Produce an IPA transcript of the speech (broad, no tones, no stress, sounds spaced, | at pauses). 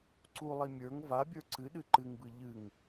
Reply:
ǀ u lˠ i mʲ ə˞ ŋ v a bʲ ə˞ ǀ ɨ ɗ ɨ ǃ ɨ ŋ b ɨ ʎ ɨ ŋ